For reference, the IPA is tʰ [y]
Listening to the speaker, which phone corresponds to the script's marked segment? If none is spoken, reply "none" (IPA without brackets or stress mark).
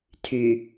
y